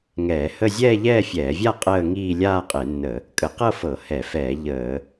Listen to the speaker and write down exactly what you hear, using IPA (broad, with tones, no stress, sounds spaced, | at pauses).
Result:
ŋ ɛː˧˩˧ h ə˥˧ zʲ ɛː˥˧ ʎ ɛː˥˧ fʲ ɛː˧˩˧ vʲ a˥˧ qʼ əː˥˧ ŋ iː˥˧ lʲ aː˥˧ qʼ e˧˩˧ nː ə˧˩˧ | kʼ ə˧˩˧ q ɤ˥˧ f ɤ˧˩˧ h ɛ˧˩˧ f ɛː˧˩˧ ʎ əː˧˩˧